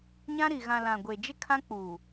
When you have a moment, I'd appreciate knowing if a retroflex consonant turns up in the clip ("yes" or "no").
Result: no